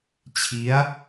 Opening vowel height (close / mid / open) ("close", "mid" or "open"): close